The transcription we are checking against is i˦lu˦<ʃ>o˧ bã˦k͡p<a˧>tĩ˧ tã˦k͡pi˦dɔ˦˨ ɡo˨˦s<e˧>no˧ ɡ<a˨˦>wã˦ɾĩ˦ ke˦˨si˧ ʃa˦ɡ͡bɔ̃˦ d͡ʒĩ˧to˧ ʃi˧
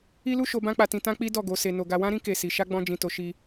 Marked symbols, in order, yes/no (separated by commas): yes, yes, yes, no